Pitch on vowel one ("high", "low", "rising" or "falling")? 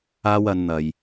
high